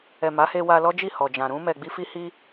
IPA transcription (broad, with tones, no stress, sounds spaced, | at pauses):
ɛ˨ m a˨˦ h e˧ w a˧ l ɔ˦ d͡ʒ i˦˨ h ɔ˨ d͡ʒ ã˨ ɾ ũ˧ m ɛ˨ ɡ͡b i˧ f i˧ h i˧